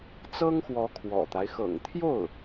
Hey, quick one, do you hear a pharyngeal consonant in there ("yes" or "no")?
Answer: no